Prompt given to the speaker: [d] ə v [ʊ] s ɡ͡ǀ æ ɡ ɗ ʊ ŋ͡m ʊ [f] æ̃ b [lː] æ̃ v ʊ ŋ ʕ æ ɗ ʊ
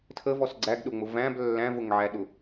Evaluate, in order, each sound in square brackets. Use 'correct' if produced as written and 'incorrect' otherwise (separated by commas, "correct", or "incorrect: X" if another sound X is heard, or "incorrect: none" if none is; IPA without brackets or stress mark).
incorrect: tʰ, incorrect: ɔ, incorrect: v, correct